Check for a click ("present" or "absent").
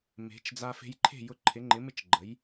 present